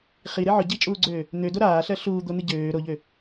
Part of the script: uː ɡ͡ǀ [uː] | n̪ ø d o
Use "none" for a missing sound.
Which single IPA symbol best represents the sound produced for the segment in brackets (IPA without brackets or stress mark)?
øː